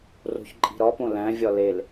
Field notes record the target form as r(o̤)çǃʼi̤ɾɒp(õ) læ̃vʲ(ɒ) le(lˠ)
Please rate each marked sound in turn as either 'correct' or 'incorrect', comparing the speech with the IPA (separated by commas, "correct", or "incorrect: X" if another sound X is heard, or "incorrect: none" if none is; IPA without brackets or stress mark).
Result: correct, correct, correct, incorrect: l